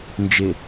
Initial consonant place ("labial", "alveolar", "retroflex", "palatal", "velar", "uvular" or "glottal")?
alveolar